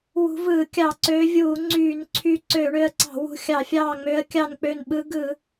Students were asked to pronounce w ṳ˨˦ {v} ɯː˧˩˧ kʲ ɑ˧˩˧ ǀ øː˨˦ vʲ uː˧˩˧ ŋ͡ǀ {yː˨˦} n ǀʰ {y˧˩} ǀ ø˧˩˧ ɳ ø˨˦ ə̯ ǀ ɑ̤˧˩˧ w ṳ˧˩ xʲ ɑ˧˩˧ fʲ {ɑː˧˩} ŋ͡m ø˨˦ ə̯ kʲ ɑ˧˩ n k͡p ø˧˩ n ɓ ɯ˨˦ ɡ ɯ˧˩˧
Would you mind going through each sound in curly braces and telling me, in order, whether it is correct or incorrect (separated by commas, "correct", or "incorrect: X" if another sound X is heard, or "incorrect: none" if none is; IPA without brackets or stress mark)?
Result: correct, incorrect: yː˧˩˧, correct, correct